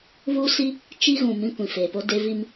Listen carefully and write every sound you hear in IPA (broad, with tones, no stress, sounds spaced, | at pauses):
β uː˦ s i˦ | t͡ʃ i˦ ɣ ũ˨ m ĩ˦ kʷ ĩ˨ f eː˨ p o˦ d e˦ v i˦ m